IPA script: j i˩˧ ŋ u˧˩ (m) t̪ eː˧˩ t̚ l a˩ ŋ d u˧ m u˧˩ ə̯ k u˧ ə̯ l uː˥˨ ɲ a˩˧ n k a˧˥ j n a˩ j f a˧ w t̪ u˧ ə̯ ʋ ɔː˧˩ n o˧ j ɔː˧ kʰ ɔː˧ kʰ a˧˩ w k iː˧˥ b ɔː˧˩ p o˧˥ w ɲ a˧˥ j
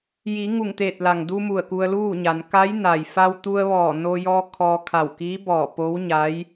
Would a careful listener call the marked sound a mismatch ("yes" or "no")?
yes